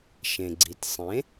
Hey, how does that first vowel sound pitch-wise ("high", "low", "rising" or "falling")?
low